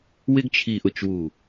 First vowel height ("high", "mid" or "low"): high